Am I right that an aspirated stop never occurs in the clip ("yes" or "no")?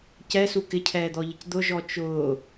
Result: no